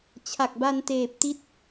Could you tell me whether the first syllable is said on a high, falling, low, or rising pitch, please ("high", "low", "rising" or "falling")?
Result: low